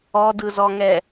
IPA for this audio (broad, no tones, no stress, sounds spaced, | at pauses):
ɔ d ɯ z ɔ ŋ ɛ